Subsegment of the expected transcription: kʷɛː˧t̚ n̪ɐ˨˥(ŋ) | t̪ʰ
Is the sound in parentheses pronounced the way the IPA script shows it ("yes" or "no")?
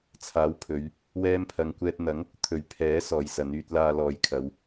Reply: yes